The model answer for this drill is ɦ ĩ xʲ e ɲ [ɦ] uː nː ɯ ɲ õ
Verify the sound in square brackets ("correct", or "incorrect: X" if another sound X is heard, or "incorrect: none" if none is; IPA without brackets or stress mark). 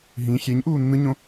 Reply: incorrect: ʔ